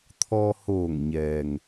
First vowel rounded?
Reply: yes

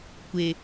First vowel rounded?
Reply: no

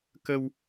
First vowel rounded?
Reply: no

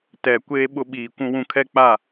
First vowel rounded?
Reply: no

